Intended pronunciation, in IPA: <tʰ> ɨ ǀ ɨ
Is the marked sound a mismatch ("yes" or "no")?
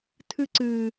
no